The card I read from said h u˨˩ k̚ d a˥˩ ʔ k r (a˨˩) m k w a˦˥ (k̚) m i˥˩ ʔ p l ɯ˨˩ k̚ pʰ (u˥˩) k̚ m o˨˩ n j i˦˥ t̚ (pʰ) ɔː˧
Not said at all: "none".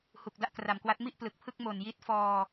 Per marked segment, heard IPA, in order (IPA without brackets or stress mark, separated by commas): a˨˩, t̚, ɯ˥˩, f